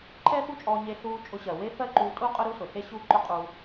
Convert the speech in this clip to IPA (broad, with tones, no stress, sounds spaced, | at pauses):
ǃʰ ɛ˥ x u˥ t͡ʃʼ ɔː˧ ɲ e˧ ɬ uː˧ t͡ʃʼ ʊ˧ ɕ ɜ˩ w e˥ f ɜ˥ ǃ uː˧ tʼ u˥ qʼ ʊ˥ ɾ u˥ s ʊ˩ ɬ e˥ ɕ u˥ ǃ ʊ˥ qʼ u˧